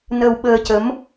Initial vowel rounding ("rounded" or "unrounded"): unrounded